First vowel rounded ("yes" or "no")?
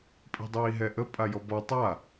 no